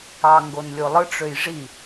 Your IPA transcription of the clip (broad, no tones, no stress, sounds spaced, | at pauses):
ɑ ŋ ɡ o n lʲ o lˠ ɯ ʈ͡ʂ ø j ʐ i